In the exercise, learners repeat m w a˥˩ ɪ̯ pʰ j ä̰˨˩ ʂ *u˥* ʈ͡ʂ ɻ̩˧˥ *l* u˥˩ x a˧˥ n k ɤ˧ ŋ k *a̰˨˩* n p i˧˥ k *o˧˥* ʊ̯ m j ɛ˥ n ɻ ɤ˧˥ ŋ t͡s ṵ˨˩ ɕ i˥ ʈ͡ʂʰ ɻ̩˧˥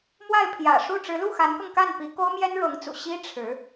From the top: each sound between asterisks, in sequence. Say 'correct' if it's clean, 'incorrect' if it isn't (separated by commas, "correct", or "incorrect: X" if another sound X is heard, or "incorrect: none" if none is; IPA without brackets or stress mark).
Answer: incorrect: u˥˩, correct, incorrect: a˥˩, incorrect: o˥